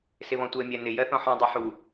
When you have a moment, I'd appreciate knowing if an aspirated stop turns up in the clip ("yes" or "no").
no